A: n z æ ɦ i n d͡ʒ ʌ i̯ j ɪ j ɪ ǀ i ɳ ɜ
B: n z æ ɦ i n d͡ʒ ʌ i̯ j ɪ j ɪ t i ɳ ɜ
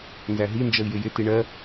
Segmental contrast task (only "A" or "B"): B